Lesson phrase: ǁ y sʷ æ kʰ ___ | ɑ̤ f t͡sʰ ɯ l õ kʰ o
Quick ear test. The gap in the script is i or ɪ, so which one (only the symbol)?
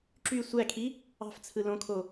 i